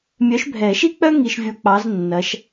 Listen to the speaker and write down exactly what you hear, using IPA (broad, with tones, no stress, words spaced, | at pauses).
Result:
mʲœ˨˥ʃbʱɛ˨˩˦ʃi˥k͡pœ˥ ŋi˧ʃvʲo˧k͡pɑ˨˥z nːɐ˨˥ʃ